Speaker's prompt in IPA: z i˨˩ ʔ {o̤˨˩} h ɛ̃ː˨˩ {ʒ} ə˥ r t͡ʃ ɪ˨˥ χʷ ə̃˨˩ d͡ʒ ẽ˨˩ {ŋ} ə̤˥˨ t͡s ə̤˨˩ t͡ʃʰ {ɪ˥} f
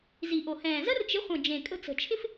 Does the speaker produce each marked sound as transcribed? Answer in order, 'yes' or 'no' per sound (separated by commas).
no, no, no, yes